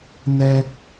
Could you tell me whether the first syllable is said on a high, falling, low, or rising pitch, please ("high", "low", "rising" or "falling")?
high